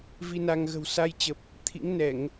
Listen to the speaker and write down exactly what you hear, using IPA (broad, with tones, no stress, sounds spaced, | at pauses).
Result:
v i˧ n a˧ ŋ ɣ ə̤˨˩ w s a˧ j t͡ɕ ə˨˩ p̚ | t̪ʰ ḭ˧˥ ŋ n ɛ˧˩˨ ŋ